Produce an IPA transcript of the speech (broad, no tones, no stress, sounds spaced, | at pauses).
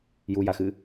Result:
j u j a x ɨ